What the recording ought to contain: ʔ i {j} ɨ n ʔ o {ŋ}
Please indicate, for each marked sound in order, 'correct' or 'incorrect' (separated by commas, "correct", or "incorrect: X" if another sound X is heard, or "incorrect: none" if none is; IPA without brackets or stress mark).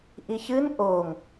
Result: incorrect: ç, correct